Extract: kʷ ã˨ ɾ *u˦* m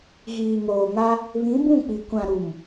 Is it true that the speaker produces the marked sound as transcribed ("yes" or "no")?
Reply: no